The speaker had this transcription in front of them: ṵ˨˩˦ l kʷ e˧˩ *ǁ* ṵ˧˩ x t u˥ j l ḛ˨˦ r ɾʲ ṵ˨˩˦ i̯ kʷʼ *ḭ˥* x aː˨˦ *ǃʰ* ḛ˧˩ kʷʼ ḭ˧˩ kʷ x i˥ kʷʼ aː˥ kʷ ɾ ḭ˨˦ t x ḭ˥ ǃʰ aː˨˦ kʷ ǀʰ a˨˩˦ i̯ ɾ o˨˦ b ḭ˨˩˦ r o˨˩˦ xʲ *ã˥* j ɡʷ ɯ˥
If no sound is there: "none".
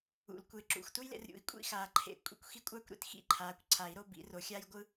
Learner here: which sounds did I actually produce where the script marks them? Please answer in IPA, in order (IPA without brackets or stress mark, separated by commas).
ǁ, ḭ˥, ǃʰ, a˥